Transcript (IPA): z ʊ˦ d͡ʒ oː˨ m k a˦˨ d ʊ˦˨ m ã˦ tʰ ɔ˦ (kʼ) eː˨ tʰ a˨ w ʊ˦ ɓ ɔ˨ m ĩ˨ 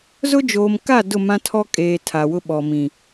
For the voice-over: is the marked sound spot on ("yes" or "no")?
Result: yes